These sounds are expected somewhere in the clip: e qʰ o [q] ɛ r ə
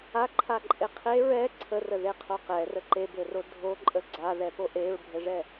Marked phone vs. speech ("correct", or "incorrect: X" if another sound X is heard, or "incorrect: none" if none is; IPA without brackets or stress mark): correct